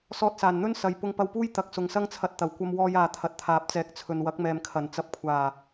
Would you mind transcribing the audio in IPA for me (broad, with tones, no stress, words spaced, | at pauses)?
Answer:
sɔː˧t̚saː˨˩n n̪ɵ˥n sɐ˨j pʊ˧ŋpɐ˧wpuː˥j t̪ɐ˨˥k̚sʊ˨ŋsɐ˥ŋt͡sʰɐ˧t̚ t̪ɐ˨˩wkʷɐ˧mwɔː˧j aː˨t̪ʰɐ˨t̚t̪ʰaː˨˥p̚t͡sɛː˨˥k̚ t͡sʰɵ˨nwɐ˨˥k̚mɛː˨m kʰɐ˨˩nt͡sɐ˧p̚kʷʰaː˨˩